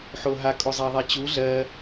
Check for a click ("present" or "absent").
absent